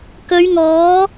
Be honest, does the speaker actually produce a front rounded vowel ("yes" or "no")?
no